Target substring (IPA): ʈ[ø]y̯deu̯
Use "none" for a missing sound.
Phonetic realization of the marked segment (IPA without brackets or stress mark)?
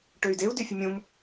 ø